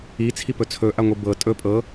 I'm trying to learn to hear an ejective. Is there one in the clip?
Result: yes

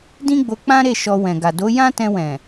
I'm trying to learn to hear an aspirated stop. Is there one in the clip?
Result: no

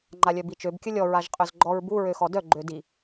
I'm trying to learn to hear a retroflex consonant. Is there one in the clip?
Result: no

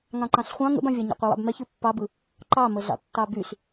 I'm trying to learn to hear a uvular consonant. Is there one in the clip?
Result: yes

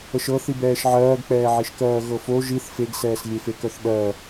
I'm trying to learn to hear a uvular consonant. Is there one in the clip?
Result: no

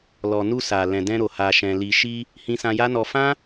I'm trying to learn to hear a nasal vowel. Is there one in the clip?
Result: yes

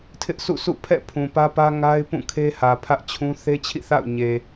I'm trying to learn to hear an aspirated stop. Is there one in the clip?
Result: yes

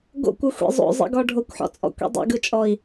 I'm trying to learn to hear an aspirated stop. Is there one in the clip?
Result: no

